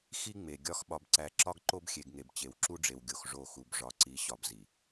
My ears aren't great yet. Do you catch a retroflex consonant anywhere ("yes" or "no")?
yes